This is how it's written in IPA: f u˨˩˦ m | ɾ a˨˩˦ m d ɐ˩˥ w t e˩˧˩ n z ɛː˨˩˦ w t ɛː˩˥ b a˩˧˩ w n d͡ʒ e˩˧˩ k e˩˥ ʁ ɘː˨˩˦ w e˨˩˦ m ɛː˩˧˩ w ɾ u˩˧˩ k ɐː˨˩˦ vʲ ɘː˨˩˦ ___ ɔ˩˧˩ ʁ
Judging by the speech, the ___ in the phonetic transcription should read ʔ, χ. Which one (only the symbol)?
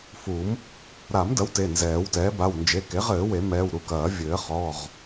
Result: χ